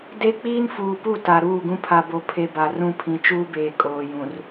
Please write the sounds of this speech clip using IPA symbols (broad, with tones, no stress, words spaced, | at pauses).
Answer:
de˦ k͡piː˦nfuː˨pu˦˨ ta˨ɾuː˦˨ɡũ˦ pʰa˨bo˨ pʰe˨ ba˨rũ˦˨ pʰĩ˨t͡ʃuː˦beː˨ kʼoː˨jũ˨r